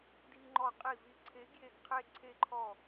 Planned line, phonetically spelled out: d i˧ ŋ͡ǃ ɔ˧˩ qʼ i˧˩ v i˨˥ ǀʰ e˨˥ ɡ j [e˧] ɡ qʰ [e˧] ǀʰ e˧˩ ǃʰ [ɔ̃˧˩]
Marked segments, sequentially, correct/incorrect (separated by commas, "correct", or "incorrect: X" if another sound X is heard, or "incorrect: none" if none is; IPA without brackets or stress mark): incorrect: e˧˩, correct, incorrect: ɔ˧˩